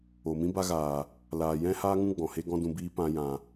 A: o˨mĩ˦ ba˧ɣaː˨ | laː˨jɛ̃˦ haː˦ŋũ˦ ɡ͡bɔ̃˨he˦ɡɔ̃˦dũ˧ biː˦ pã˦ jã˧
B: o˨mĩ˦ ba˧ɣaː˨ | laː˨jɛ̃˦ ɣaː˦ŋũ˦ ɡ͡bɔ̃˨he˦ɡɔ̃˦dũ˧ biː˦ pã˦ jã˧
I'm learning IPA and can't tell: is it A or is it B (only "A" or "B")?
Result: A